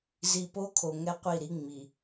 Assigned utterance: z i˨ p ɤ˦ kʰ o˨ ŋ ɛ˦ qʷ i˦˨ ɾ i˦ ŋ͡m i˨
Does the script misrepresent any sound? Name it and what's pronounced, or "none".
ɤ˦ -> o˦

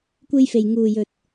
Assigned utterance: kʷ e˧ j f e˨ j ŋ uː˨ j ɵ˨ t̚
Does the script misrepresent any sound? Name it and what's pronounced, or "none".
none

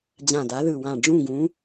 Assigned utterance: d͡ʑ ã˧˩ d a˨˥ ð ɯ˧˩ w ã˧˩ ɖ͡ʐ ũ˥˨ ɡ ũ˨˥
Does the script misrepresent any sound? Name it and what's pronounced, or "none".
none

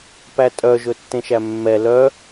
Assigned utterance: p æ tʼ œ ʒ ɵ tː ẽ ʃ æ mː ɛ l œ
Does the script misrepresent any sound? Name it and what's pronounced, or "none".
none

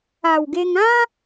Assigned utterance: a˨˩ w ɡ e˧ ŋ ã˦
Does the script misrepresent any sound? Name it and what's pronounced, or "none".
none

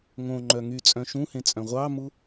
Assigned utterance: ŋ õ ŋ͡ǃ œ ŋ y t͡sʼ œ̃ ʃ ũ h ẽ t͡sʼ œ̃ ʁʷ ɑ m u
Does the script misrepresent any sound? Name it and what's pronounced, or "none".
none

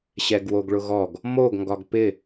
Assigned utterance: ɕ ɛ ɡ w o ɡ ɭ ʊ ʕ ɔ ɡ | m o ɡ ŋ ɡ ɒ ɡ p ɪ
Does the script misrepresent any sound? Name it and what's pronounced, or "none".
ʕ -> ɣ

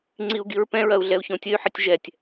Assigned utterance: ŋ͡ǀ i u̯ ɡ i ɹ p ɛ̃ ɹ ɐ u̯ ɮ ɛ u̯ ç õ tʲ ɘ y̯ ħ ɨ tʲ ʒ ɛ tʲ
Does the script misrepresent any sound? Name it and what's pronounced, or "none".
none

